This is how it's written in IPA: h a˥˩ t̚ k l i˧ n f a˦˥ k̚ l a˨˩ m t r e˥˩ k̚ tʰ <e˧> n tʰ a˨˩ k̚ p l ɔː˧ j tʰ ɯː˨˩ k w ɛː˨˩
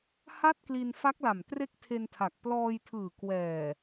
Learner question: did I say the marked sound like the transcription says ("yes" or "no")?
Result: yes